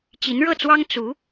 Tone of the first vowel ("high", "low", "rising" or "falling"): rising